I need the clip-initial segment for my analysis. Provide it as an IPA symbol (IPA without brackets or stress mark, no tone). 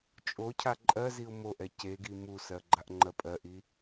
t͡ʃʼ